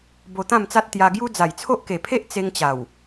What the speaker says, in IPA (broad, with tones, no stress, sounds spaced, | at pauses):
b o˧ t̪ ã˥˧ m t͡s a˦ t̚ t̪ j a˧ ɡ j u˦ d͡z a˨˩ j t͡sʰ o˦ ʔ k e˨˩ pʰ e˦ ʔ t͡s e˧ ŋ t͡ɕ a˨˩ w